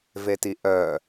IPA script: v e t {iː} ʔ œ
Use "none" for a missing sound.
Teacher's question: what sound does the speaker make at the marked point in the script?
i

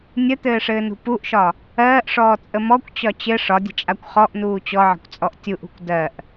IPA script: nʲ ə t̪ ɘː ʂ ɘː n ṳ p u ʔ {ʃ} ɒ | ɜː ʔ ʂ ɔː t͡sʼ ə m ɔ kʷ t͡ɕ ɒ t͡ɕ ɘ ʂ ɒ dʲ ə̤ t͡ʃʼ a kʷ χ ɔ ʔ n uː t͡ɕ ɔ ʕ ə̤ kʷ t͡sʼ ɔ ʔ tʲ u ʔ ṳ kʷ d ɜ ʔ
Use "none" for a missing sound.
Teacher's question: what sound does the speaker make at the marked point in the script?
ʃ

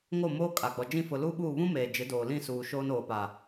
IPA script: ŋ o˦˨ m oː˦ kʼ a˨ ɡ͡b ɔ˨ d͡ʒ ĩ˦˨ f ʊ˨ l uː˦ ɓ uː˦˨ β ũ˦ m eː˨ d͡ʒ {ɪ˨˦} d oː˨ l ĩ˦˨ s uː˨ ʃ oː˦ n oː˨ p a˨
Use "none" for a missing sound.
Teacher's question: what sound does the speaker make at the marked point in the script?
ɪ˨˦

